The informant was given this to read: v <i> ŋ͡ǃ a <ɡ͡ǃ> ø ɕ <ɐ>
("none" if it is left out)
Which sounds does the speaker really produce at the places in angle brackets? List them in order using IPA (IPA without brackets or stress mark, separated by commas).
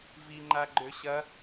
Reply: i, ɡ͡ǃ, ɐ